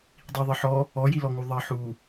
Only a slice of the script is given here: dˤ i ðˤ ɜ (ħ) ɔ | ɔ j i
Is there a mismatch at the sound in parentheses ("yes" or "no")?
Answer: no